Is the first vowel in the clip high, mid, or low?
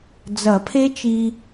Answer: low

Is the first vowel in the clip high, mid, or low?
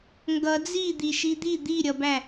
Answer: mid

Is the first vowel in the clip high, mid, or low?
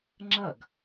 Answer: mid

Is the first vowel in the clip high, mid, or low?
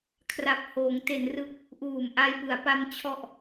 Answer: low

